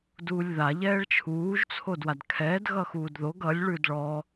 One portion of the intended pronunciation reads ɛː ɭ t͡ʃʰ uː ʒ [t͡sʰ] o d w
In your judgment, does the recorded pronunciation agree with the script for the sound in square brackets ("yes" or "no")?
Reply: yes